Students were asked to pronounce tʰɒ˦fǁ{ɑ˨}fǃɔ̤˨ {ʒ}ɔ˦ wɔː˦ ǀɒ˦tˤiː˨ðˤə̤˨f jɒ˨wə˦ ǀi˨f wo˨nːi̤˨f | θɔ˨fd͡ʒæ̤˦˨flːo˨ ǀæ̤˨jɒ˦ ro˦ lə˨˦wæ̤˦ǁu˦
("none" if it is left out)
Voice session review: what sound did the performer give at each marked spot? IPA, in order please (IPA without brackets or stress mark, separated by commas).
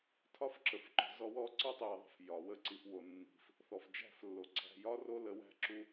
ə˨, z